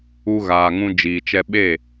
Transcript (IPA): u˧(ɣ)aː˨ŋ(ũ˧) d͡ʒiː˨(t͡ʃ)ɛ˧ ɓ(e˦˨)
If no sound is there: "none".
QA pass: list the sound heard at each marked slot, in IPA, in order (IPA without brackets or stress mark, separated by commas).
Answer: ɣ, ũ˧, t͡ʃ, e˦˨